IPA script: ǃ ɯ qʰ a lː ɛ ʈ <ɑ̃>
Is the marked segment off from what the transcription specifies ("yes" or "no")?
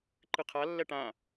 yes